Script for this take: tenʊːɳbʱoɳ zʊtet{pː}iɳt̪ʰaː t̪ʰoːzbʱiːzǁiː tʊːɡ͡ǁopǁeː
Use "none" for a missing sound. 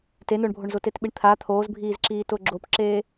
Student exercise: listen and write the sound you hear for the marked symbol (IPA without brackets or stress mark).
ɓ